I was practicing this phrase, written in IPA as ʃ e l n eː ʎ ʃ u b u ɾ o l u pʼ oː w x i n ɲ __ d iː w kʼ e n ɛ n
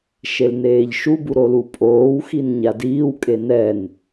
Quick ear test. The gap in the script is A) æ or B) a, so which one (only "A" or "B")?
B